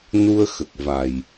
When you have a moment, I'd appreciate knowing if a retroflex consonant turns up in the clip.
no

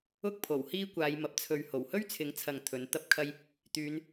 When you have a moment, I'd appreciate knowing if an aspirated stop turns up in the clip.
yes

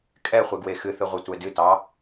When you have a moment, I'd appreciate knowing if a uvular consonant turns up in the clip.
yes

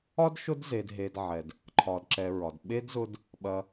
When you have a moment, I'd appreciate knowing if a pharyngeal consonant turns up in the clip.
yes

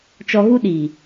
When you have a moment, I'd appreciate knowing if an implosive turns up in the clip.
yes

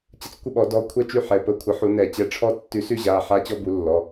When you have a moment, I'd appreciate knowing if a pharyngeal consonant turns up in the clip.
yes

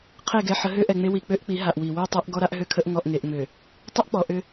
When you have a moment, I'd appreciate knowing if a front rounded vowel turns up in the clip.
yes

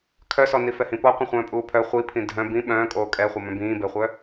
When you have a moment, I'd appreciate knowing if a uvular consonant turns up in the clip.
yes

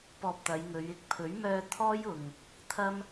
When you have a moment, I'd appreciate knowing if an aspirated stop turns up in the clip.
yes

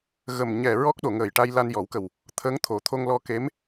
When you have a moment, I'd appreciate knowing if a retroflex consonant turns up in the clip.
yes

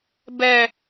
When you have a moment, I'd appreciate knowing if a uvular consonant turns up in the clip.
no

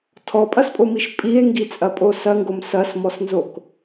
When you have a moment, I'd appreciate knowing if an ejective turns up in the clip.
yes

